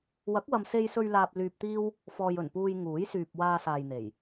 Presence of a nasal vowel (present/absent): absent